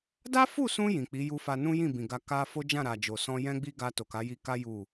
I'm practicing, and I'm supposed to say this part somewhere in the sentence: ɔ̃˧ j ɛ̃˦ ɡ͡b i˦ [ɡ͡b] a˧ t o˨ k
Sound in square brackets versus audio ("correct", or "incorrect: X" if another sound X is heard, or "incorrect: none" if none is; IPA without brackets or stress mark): incorrect: ɡ